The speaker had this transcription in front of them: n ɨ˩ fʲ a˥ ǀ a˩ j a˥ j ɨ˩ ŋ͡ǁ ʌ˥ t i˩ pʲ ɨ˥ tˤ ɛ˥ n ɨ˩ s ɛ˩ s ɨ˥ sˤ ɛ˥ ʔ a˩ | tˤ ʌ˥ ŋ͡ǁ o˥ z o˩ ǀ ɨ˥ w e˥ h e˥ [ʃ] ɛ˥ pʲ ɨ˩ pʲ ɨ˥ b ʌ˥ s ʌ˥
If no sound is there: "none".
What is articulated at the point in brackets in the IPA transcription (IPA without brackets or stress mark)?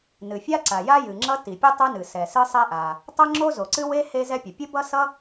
z